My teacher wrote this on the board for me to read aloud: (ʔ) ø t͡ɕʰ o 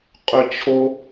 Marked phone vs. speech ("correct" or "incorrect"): incorrect